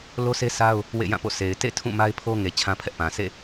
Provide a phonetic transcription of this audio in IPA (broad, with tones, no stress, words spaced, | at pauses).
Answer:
lo˦sʰe˦sa˦ʊ̯ | wḛ˦˨ jã˦˨po̰˦˨ sʰe˨ɪ̯ tḛ˦˨ tʰũ˦˨ma˦ɪ̯ pʰo˦ŋe˨ t͡ɕʰã˦pʰɛ˦ʔpã˨ sḛ˦˨